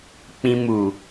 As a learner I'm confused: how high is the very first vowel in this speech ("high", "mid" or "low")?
high